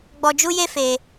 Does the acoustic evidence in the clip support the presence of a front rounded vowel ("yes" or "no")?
no